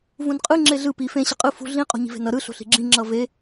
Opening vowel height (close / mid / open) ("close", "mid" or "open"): close